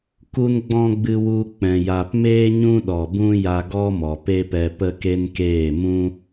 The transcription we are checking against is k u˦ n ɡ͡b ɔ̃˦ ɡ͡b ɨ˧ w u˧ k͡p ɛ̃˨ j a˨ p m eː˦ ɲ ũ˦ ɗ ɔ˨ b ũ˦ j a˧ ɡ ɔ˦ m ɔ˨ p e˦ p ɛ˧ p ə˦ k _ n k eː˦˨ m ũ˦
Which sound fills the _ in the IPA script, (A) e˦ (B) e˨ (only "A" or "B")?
A